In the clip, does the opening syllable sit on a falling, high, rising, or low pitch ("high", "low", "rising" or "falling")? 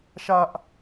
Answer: high